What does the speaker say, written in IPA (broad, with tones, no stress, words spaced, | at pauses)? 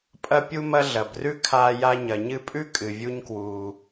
pʼɐ˧ pʲu˧mɐ˧ ɮɐ˨brʉ˦ kʰaː˧ja˧ ɲɐ˨ɲɨ˧pʼʉ˦ kʼɨ˨vʲu˦ɲkwuː˧